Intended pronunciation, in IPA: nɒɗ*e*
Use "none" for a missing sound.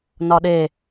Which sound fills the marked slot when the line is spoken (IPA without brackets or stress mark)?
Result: e